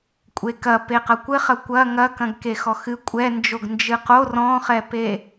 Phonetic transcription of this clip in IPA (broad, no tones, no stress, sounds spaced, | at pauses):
kʷʼ e k ɐ p e q ɐ kʷ ɘ χ ɐ kʷ ɐ ŋ ɐ k ɐ̃ ɡ k e x ɔ x ɨ kʷʼ ɛ n d͡ʒ o ɡ n d͡ʒ ɨ q o r ɔ̃ χ ɛ p e